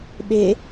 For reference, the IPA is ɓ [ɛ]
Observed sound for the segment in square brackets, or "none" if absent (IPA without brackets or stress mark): e